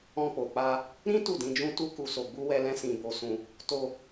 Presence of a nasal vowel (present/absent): present